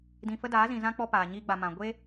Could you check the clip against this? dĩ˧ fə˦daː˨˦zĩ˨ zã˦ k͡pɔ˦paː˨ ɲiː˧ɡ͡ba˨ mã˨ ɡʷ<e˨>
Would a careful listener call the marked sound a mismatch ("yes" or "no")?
yes